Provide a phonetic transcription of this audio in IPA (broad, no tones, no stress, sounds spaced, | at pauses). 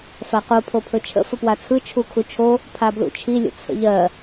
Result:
f a q o pʰ o pʰ ɵ t͡ʃʰ ə̰ f ə p w a t͡sʰ ɯ t͡ʃʰ u kʰ u t͡ʃʰ o | pʰ a b l ṵ t͡ʃʰ i lʲ ə̰ t͡sʰ ə̰ ʎ ɜ